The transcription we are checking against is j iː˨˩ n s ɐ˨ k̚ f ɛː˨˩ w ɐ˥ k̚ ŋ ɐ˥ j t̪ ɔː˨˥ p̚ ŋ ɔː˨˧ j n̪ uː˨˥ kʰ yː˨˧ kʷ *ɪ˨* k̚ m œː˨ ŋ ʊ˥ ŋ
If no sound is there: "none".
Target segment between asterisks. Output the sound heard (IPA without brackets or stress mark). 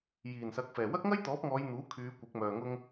ɪ˨˥